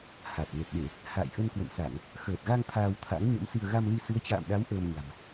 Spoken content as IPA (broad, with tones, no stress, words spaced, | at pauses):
ha˨˩t̚nə˨˩t̚ɗe˧˩˨ | ha̰ː˧˨jʔə˧nkwə̰˧˨nsa˧˩˨ŋ | xəː˨˩t̚ɣa˧ŋ t̪ʰaː˧wt̪ʰa̰˧˥ŋ ɲə̰˧˥msi˧ə̯ ɣa˧mli˧ sɨ˨˦ə̯t͡ɕa̰ː˧˨mɗa˨˦w ʔəː˧mɲa̤˨˩m